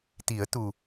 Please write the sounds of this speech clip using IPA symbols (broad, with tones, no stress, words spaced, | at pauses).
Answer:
t̪i˨˩˦ə̯t̪u˨˩